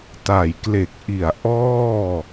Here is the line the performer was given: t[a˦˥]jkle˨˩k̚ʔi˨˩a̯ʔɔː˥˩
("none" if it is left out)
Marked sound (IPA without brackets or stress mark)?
a˨˩